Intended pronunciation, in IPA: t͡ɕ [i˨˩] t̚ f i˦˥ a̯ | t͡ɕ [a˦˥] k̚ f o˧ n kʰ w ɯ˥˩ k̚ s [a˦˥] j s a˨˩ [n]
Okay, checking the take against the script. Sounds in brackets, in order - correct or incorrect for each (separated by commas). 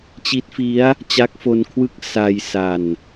incorrect, correct, incorrect, correct